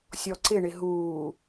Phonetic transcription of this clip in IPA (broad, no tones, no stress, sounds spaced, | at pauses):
sʲ ɔ ǀ ɪ ɳ ɪ ɦ uː